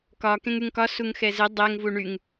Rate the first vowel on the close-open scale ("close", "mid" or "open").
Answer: open